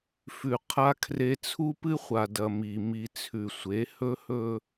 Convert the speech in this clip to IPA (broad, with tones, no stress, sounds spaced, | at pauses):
f ʉ˨ qʰ a˦ kʰ r e˦ t͡sʰ u˦ p ɨ˦ χʷ a˨ d ɐ˨ m i˨ m i˨ t͡sʰ ʉ˨ sʷ e˨˦ h ɵ˦ h ɵ˦